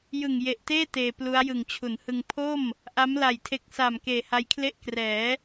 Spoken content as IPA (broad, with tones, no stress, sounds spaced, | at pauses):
j ɯ˨˩ ŋ j e˨˩ ʔ t eː˥˩ t eː˧ p l u˦˥ a̯ j ɯ˨˩ ŋ t͡ɕʰ u˩˦ n h ɯ˧ ŋ pʰ o˥˩ m | ʔ a˦˥ m l a˨˩ j tʰ e˨˩ k̚ s a˨˩ m k eː˨˩ h a˦˥ j kʰ l e˥˩ ʔ k r ɛː˩˦